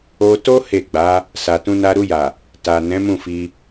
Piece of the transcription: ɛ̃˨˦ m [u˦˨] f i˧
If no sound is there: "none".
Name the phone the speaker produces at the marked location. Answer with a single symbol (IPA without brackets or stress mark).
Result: ũ˦˨